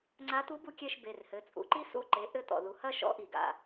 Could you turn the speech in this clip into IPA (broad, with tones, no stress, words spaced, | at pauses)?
ŋ͡ǀa˧˥ t̪u˧˥bu˦˨kʲɛ˦˨ʃ be˩˧˩rhɘ˩˧˩t͡sʼṵ˩˥ǃi˥ sṵ˦˨ǃe˩˥ʔɘ˦˨ t̪ɔ̰˩ðu˩hɐ˦˨ʃɔ̰˩˥ ʔi˩ɡa̰˩˧˩